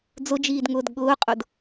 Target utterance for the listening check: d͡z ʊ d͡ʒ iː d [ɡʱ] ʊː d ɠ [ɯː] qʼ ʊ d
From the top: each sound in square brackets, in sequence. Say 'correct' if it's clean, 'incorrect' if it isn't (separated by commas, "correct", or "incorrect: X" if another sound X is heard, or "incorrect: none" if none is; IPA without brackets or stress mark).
incorrect: ŋ, incorrect: ʊː